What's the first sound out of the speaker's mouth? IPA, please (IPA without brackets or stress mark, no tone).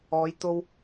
ɔː